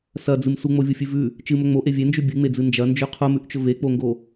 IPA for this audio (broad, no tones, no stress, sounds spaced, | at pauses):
s ɐ d͡z ɨ m s u ŋ͡m o vʲ u fʲ ʉ v ʉ | t͡ʃ ɨ m ɵ ŋ͡m o ʔ e vʲ e n d͡ʒ ʉ bʲ ɨ ŋ͡m e d͡z ɨ n d͡ʒ ɐ n d͡ʒ ʉ qʰ o m ʉ ʔ t͡ʃ ɵ v e k͡p o ŋ ɡ o